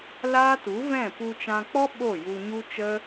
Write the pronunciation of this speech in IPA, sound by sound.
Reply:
l aː˦ t u˨˦ v ɛ̃˦˨ p u˧ t͡ʃ ã˧ k͡p ɔ˦ ɓ o˦˨ j u˧ ɲ u˦ t͡ʃ ə˦

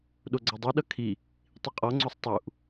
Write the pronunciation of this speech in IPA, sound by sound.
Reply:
ɗ o ɡ͡ǀ ʌ dˤ i ɗ ʌ kʰ i | tˤ i qʼ ɔ ŋ͡ǀ o sˤ tˤ u ʔ

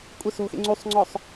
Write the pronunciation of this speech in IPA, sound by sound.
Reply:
kʷʼ e s o̤ x ḛ ŋ͡ǀ u sˤ ŋ͡ǀ ɔ sˤ

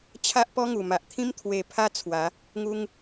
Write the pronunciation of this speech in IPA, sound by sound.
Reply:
t͡ɕʰ a˦ ʔ p ɔ˦ ŋ u˨˩ m a˨ ʔ t̪ʰ ĩ˦ m t̪ʰ w e˧ pʰ a˦ t͡sʰ w a˨˦ | ŋ u˦ ŋ

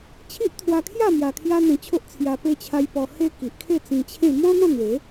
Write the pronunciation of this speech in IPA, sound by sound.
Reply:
t͡ɕʰ i˦ ʔ t̪ʰ w a˧ kʰ j a˥˧ m j a˧ kʰ j a˦ n̪ ẽ˧ t͡ɕʰ o˦ ʔ t͡sʰ j a˧ p e˧ t͡ɕʰ a˧ j p ɔ˧ h e˦ k i˨ ʔ kʰ e˥˧ t͡s ĩ˧ t͡ɕʰ ẽ˥˧ m ɔ̃˦ n̪ ɔ̃˥˧ n̪ w e˨˦

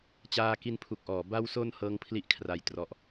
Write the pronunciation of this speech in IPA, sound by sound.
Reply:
t͡ɕ aː˧ k i˧ n pʰ u˨˩ k̚ ʔ ɔː˩˦ b a˧ w s o˧ n h ɤː˦˥ ŋ pʰ l i˦˥ ʔ kʰ r a˧ j t r ɔ˦˥ ʔ

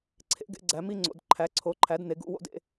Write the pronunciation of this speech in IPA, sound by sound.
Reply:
ǀʰ ḛ˨˦ ɡ ḛ˨˦ ɡ͡ǀ æ˨˦ m i˥˧ ŋ͡ǀ o̰˨˦ d ǃʰ æ˨˦ ǀʰ o˨˦ ǃʰ æ˨˦ d n e˨˦ ɡ ṵ˨˦ w o̰˥˧ d ḛ˥˧

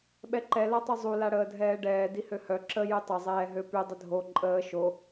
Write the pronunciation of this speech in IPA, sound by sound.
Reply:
ɓ ɛ ǃ ɛ l a tˤ u zˤ u l a ɽ əː dʱ ɛː ɖ ɛː d i h ø h œ ǁ ə j y tˤ ə zˤ ɛː ɦ ø p y dˤ ə dʱ o ǃʼ əː ʃ o

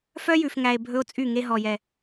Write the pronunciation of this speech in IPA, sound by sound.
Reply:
f œ˦ j ʉ˨ f ŋ æ˨ e̯ bʱ ɵ˦ o̯ t͡sʼ y˦˨ ŋ e˦ ɦ ɔ˨ j ɛ˨

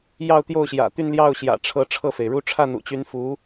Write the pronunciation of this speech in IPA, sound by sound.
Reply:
j ɑ˥˧ ʊ̯ t̪ j o˥˩ ʊ̯ ɕ j ä̰˨˩ t̪ y˥˧ n l j ɑ˥˩ ʊ̯ ɕ j ä̰˨˩ ʈ͡ʂʰ ɤ˧˥ ʈ͡ʂʰ ɤ˥˩ f e˩ ɪ̯ ɻ u˥ ʈ͡ʂʰ ä˥˩ n̪ ṵ˨˩ t͡ɕ y˧˥ n f u˧˥

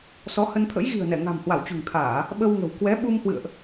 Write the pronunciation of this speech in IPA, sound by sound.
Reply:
s ɔ˨˦ h ə˧ n t̪ʰ ə̰˧˥ j ɣ i̤˨˩ ə̯ n ɛ˧˩ ŋ a̤˨˩ m h w a˧˩ w t͡ɕ ṳ˨˩ ŋ t̪ʰ aː˧˩˨ | ɓ ə˧ w ŋ ə̤˨˩ w k w ɛ˨˦ ɓ u˧ m h w ɨ̰˧˨ ə̯ ʔ

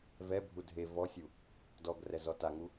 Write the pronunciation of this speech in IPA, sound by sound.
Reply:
v ɛ bʱ u dʱ e v ɔ sʲ u | d ɔ ɡ r ɛ z ɔ t a ŋ u

